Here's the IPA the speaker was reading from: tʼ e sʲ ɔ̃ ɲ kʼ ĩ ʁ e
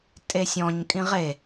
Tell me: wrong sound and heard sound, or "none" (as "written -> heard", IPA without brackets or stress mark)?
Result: none